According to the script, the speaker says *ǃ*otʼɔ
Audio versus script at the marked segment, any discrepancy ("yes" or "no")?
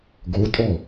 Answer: yes